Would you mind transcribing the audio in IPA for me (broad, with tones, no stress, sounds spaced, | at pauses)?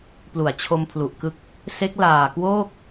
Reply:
p l u˨˩ a̯ t͡ɕʰ o˧ m pʰ l u˨˩ ʔ k ɯ˦˥ k̚ | s e˦˥ k̚ l aː˨˩ k w oː˥˩ k̚